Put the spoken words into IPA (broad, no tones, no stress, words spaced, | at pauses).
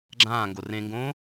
ɡ͡ǁãːŋɡo rẽŋɡõː